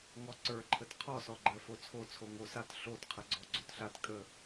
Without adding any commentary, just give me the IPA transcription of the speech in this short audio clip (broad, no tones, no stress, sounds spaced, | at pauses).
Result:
ŋ ɔ ǀ ə˞ ǃʰ ə t qʰ ɔ s ɔ ɡ͡ǃ ɜ f o t͡sʰ o t͡sʰ o ŋ o s a t ɬ o t qʰ ə ɡ͡ǀ ɔ ɡ͡ǀ o t ɬ a t kʼ ə